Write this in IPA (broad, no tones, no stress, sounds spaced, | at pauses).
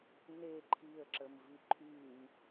n e ǃʰ i ə̯ ǁ ə m v i ǃʰ y m